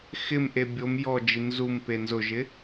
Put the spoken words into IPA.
x ɪ m ʔ e bʲ o m j ɔ d͡ʒ i n z u m p e n z ʊ ʒ ɪ

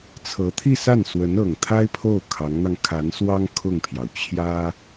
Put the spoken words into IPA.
t͡sʰ ɤ˧˥ t̪ʰ i˥˧ s a˥˩ n s w ə˧˥ n ɤ˨˩ ŋ t̪ʰ a˥ ɪ̯ pʰ o˥˩ ʊ̯ kʰ ɑ˧˥ ŋ n̪ ɑ˧ ŋ kʰ a˧˥ n s w ɑ˥ ŋ kʰ ʊ˥˩ ŋ pʰ j ɑ˩ ʊ̯ t͡ɕʰ j ä˥

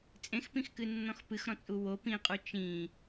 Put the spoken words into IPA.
t͡sʼ ẽ x p ĩ x k ɨ nː ɔ̃ x p ɨ x ɾ ɔ̃ t͡sʼ u w o p ĩ qʼ u t͡ʃ ĩ

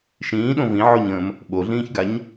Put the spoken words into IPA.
ʃ ĩː ɗ õ v ĩ ʕ o ɲ ə̃ː m | ɓ o ɮ ĩː ç ɡ a ɲ

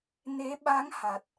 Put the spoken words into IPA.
n e˧˥ ɓ a˧˥ ŋ h a˨˩ t̚

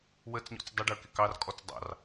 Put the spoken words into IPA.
w ə t͡s ɲ ɔ̰ t͡s dˤ ə ɖ ə˞ k ɪ k ɑ r kʼ ɔ t͡s dˤ ɑ̰ r

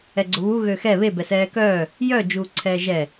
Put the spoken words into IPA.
ɛ ɡ͡ǀ ʊ β u ɣ ø x ɛ β e b ɛ s ɛː k œː | j œ d͡ʒ uː ǀʰ ɛː ʒ ɛ

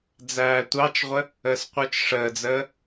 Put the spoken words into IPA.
d͡z æː tʷ ɑ t͡ʃ ʁʷ ə | əː s qʷ ə˞ t͡ʃ ʂ əː d͡z əː

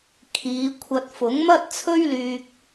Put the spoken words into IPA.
kʰ iː˨˧ kʷʰ ɐ˧ t̚ f ʊ˨˥ ŋ m ɐ˥ t̚ t͡sʰ ɵ˥ ɥ l yː˧ k̚

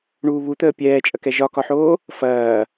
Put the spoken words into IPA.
ɳ uː β u t̪ əː pʲ ɛː t͡ʃʼ ɐ k ɛ ʒ ɒ k ɒ ħ oː | f ɐː

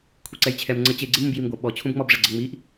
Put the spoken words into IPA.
kʷʰ i ǀ ɛ j t͡ɕʰ ɛ m ŋ͡ǀ ə t͡ɕ e ɡ͡ǀ e m ũ b j i m ɡʷ ɐ ɓ ɔ t͡ɕʰ ũ b ŋ͡m ɔ b ʐ ɛ ɡ͡ǀ ɛ ŋ͡m i ʔ

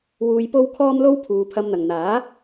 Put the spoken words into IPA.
w uː˧ j p o˥ w kʰ ɔː˥ m l o˥ w pʰ uː˨˧ pʰ ɐ˧ m n̪ ɐ˨ ŋ n̪ aː˨˥

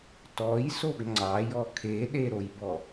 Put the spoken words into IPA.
t ɔ j s o ɡ ŋ͡ǀ ɑ j ɔ kʰ e ɗ e ɾ o j b ɔ

